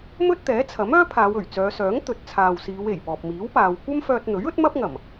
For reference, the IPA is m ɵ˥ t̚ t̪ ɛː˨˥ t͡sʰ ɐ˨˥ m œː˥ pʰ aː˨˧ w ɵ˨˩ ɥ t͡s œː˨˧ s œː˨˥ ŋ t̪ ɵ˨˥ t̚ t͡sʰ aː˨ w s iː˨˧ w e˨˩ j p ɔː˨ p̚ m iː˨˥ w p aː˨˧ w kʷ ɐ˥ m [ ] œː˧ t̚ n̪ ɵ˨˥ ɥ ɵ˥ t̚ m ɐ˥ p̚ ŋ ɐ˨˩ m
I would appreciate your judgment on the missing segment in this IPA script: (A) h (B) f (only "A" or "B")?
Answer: B